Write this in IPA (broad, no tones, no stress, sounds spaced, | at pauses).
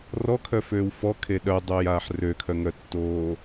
r ɔ kʰ œ f øː w f ɔ kʰ e ɗ œ dˤ œː j aː ħ r ø kʰ œ ŋ œ tː oː